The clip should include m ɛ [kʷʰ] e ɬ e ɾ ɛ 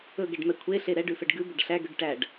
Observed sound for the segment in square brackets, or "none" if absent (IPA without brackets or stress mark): kʷʰ